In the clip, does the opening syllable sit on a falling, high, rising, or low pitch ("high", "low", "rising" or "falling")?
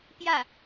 falling